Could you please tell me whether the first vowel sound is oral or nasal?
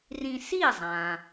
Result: nasal